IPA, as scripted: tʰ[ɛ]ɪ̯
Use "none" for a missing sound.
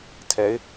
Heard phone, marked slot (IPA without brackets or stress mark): ɛ